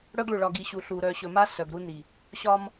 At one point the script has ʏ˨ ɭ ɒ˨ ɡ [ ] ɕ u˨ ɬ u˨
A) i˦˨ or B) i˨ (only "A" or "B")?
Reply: B